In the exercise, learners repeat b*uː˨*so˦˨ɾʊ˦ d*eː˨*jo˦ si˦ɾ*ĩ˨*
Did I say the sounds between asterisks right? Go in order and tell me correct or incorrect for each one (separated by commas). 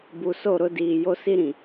incorrect, incorrect, correct